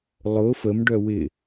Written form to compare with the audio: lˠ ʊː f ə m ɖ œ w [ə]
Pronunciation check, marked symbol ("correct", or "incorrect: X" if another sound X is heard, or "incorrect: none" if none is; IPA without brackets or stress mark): incorrect: ɪ